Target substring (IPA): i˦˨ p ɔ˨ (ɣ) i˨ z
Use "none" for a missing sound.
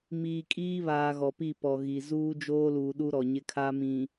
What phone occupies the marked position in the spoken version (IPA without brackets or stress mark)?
ɣ